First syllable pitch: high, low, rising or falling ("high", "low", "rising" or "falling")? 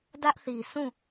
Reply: high